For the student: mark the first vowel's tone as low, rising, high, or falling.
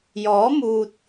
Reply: rising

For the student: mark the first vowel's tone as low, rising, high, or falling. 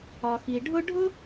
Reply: low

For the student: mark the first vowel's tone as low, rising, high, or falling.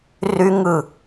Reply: high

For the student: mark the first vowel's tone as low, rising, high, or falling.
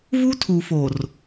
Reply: high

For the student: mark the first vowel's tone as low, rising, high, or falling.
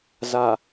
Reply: low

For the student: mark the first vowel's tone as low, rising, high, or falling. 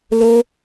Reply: high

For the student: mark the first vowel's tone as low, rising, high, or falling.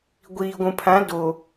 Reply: low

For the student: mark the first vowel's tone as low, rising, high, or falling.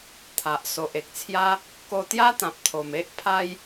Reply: low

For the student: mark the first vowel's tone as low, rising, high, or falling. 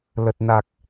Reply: low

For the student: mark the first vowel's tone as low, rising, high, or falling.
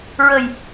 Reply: low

